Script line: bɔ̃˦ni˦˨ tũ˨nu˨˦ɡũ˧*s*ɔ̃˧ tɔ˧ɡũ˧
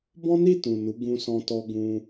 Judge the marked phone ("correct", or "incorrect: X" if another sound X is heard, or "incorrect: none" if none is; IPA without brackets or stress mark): correct